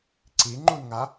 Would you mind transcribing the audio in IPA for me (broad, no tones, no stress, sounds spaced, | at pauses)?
ǀ i ŋ͡ǃ u n ŋ a